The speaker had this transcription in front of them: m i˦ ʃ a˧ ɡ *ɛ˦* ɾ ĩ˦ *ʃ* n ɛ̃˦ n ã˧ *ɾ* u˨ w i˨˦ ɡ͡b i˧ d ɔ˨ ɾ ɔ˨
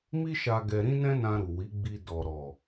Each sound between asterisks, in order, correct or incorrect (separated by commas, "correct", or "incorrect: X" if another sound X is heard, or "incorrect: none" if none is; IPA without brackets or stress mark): incorrect: ɛ˧, incorrect: none, correct